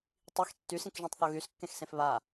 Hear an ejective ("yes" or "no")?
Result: no